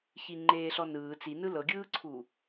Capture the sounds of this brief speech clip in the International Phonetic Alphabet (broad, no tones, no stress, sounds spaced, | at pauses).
ç i ŋ͡ǃ eː ɬ ɔ n ɯː t͡s i n ɯ l ɤ ɡʲ ɯː ǀʰ u